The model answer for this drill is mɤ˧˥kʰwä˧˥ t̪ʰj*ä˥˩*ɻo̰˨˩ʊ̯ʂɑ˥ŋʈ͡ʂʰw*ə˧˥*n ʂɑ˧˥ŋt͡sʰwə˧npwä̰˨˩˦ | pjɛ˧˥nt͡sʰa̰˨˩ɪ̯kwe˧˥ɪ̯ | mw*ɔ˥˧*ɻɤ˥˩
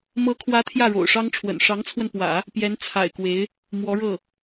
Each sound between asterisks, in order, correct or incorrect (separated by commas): correct, incorrect, incorrect